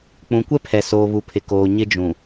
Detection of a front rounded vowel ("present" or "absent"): absent